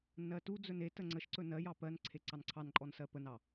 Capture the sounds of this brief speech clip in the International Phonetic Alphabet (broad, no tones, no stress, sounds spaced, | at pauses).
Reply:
n ɜ t u d͡z ɵ n e t ə ŋ͡ǀ ə ʃ ǀ ɵ n ɜ j ɑ p ɜ n ǀʰ e ǀ ɑ n ǀʰ ɑ n ǃʼ ɔ n s ɜ p ə n ɑ